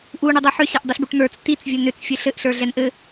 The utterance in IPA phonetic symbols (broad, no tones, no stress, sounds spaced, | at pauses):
ʔ u ɳ i dˤ ɛ ħ ʏ ɕ ɛ ʔ dˤ i ɬ b u ʈ n̪ ə˞ t͡s t i t͡s vʲ ɘ n ʏ t͡s fʲ ɘ ɬ ɘ ʔ ɬ ə˞ ɮ ɛ n ʔ ɘ